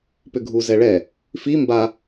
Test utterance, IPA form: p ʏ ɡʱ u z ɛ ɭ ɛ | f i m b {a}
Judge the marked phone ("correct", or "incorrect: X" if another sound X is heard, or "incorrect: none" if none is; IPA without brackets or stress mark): correct